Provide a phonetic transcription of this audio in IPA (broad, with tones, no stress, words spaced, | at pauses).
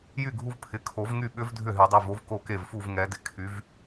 jy˥˩ɡʱu˦˥vpʰɪ˩˧˩ kʰo˨˩˦v ŋy˥˧ɓʏ˦˥v dʱʏ˥˩ɦy˨˩˦dˤy˩˧˩vo˦˥v ko˥˩ke˥˩vfu˥˧v ŋɛ˨˦dɪ˥˩ kʰy˨˦v